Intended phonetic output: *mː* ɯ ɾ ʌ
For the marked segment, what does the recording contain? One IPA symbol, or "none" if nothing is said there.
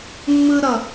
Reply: mː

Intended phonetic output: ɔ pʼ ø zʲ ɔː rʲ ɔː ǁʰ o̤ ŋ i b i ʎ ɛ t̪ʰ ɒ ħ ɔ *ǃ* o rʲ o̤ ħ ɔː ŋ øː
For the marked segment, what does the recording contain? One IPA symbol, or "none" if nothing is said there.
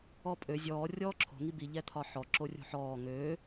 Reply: ǁ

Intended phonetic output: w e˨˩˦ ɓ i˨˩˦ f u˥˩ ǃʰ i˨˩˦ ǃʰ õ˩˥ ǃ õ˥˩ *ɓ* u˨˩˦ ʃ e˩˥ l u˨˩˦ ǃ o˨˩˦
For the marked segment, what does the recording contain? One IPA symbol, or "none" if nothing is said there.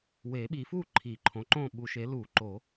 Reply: ɓ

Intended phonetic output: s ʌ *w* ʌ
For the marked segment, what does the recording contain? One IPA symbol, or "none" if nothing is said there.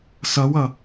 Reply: w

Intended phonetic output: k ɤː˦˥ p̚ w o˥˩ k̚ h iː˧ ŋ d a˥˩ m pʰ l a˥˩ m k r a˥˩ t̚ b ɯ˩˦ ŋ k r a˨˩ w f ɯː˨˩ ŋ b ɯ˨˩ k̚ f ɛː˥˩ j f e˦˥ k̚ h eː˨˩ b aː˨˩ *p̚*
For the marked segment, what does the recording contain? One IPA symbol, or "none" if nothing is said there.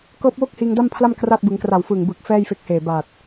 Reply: t̚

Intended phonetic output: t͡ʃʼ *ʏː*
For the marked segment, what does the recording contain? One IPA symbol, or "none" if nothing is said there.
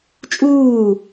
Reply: uː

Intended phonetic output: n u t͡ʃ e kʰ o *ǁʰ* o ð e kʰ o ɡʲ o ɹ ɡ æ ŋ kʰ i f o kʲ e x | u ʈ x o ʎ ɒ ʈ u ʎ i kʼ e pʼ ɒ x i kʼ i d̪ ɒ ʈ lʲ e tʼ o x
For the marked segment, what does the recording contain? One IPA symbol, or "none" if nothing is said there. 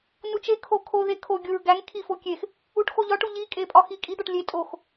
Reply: kʰ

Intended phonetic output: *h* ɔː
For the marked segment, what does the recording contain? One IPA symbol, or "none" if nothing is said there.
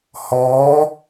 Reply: h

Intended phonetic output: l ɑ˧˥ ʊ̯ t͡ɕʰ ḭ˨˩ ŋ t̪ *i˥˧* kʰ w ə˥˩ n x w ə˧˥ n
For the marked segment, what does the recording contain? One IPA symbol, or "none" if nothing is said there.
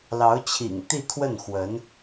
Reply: i˥˧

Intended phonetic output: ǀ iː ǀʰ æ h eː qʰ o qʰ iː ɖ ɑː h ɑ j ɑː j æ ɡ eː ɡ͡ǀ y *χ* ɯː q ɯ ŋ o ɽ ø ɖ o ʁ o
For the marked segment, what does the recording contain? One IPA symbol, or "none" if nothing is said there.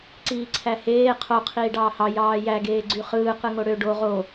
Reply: χ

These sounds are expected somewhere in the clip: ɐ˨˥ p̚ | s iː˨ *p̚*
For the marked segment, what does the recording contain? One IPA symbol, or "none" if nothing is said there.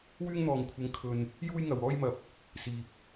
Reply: p̚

